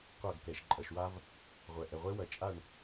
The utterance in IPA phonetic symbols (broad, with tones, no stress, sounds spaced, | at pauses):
qʷ ɐ˦˨ ɡ k ɛ˨ ʃ ǃʼ ɐ˨ ʃ w a˦ v | ʁʷ ɛ˨ ʔ ɛ˨ ʁʷ e˦ w ɐ˨ t͡ʃʼ a˦˨ ɳ